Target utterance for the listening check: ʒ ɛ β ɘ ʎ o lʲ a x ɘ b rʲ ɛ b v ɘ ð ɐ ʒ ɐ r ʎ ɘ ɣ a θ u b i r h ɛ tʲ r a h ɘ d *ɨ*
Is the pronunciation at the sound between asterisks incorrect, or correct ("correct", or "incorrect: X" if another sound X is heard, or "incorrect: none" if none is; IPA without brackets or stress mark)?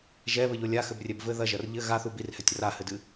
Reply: correct